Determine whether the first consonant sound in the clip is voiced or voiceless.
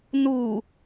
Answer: voiced